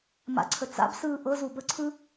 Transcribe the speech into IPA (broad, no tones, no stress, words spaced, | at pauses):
ma̰ǀʰət͡sa̰bsɯː ʔɤzu bəǀʰɯ